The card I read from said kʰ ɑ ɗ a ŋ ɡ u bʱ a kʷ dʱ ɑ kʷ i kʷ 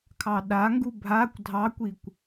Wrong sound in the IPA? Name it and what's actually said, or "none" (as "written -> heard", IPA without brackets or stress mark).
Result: none